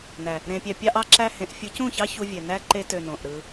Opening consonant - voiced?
yes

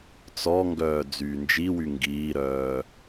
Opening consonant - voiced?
no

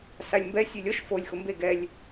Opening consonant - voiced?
no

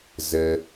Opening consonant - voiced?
yes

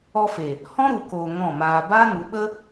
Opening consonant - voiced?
no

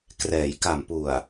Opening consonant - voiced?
no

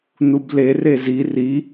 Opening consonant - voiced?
yes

